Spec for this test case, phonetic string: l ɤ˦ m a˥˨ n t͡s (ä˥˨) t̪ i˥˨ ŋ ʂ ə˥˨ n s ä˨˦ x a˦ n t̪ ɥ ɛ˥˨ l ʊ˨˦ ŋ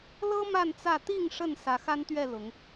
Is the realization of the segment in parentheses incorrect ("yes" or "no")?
no